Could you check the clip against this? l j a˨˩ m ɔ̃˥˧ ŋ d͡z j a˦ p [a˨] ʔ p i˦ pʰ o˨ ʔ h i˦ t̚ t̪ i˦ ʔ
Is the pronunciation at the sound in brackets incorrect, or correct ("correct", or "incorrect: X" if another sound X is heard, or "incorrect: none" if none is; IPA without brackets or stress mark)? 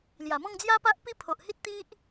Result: incorrect: a˦